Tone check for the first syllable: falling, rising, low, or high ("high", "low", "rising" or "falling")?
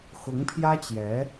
rising